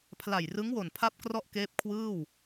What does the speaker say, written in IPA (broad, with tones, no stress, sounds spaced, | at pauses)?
pʰ l a˨˩ j r ɯ˦˥ ŋ w o˨˩ n pʰ a˥˩ p̚ k r ɔ˥˩ ʔ k eː˦˥ p̚ kʰ w ɯː˥˩ w